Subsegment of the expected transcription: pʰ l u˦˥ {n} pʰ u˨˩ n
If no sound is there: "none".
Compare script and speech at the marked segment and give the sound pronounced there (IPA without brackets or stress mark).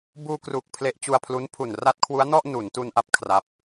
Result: n